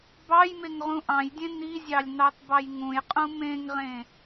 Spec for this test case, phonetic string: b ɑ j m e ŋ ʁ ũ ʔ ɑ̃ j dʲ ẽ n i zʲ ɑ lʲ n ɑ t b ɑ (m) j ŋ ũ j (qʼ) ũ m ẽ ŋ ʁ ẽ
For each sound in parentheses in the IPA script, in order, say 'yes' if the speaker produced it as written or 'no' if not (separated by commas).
no, yes